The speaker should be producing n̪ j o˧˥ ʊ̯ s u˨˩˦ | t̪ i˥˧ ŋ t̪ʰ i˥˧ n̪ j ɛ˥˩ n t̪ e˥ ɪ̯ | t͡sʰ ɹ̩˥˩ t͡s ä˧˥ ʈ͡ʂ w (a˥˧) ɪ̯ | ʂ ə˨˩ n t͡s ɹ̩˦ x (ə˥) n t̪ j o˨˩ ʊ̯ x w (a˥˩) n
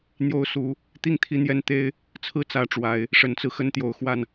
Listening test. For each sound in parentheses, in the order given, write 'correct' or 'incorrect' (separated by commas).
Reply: incorrect, incorrect, correct